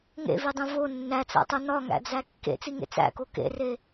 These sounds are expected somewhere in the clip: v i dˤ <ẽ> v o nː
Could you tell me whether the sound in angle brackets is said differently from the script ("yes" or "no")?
no